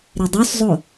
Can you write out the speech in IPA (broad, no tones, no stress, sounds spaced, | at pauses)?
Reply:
ɾ e dˤ o s zˤ o